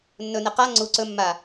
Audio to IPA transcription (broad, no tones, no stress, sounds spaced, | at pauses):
nː ɵ n e q a ŋ͡ǀ u ǀ ɵ mː a